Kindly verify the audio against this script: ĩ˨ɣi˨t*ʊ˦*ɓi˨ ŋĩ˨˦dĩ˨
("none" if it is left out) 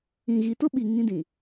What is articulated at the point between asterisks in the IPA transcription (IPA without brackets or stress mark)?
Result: ʊ˦